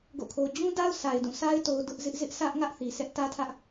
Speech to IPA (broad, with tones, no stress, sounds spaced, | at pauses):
ɡ o̰˦˨ kʰ o˦ d͡ʑ ũ˦ d a˦ ʊ̯ s a˨ ɪ̯ d ũ˦˨ s a˦ ɪ̯ t o˨ d ʊ˦ ʔ z ɪ˦ ʔ z ɪ˦ ʔ sʰ ä˦ ʔ ŋ ä˦ ʔ θ i˨ sʰ ɛ˦ ʔ t ä˦ tʰ ä˦ ʔ